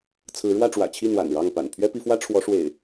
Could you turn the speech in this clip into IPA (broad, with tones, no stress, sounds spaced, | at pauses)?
t͡sʰ ɹ̩˨˦ ɻ w ä˥˨ ʈ͡ʂ w ä̰˨˩ t͡ɕʰ i˥˨ n̪ w a̰˨˩ n ɻ ɑ˥˨ ŋ p a̰˨˩ n pʰ ɥ ɛ˦ p i˨˦ f w ä˦ ʈ͡ʂʰ w ɔ˨˦ ʂ w ḛ˨˩ ɪ̯